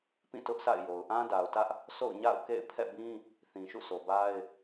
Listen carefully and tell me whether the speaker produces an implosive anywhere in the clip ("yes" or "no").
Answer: no